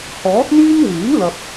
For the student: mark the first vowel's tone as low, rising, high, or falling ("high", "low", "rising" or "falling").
rising